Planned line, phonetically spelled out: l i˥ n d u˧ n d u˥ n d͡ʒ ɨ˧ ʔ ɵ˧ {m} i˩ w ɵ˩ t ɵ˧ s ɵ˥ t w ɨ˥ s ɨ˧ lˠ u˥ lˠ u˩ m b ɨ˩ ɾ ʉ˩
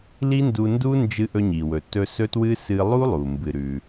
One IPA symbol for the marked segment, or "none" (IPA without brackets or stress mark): ɲ